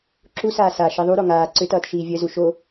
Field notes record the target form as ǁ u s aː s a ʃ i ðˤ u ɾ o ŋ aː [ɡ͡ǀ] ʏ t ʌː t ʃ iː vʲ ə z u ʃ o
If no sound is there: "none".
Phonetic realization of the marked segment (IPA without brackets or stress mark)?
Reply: ǀ